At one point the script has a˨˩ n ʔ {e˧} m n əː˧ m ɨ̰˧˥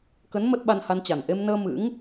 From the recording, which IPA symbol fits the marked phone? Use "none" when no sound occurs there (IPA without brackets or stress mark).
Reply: e˧